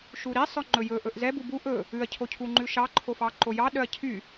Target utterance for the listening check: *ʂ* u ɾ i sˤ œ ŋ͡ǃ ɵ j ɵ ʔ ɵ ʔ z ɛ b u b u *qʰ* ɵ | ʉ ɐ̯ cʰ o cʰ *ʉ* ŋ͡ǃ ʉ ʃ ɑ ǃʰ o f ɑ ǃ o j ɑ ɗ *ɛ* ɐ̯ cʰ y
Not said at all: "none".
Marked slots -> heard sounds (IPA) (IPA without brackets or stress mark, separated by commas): ʃ, ʔ, u, œ